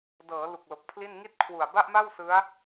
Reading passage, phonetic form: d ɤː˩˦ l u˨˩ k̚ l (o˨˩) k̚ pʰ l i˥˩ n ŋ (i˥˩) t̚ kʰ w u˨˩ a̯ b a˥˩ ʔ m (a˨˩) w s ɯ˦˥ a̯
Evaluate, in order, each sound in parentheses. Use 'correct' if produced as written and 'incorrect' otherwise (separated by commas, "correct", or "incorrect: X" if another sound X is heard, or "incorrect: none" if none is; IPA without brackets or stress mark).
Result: correct, correct, incorrect: a˥˩